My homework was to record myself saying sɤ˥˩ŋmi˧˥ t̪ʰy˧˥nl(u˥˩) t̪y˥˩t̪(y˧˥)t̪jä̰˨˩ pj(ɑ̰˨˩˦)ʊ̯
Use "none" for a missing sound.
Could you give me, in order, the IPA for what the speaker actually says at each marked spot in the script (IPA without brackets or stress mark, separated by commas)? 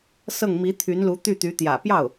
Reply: u˧˥, y˧˥, ɑ˥˩